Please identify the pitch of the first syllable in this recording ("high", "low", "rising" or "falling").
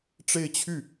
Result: falling